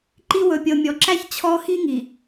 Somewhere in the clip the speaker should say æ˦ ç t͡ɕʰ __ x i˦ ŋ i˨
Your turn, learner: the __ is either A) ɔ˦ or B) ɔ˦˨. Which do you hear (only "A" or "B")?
A